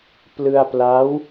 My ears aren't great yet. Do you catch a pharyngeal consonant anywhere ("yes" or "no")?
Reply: no